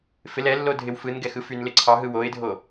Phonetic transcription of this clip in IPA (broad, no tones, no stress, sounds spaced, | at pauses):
f ɪ l ɛ lː o dʱ ɪ w f ɯ n ɡ ɛ x ɯ f y n l ɪ ǀʰ ɑ ɦ ɯ w o ɪ̯ dʱ o